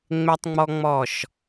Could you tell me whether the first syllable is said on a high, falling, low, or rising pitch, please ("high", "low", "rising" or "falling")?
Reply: high